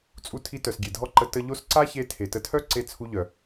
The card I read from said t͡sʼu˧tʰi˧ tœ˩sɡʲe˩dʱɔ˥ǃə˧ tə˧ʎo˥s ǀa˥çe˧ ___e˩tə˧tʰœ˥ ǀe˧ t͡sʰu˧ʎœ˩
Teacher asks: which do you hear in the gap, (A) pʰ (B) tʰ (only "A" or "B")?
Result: B